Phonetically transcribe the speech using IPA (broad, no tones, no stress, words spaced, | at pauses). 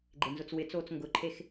ɡ͡ǃɪnzʊt͡swɪt͡soːt͡s ŋɡʊǃʰex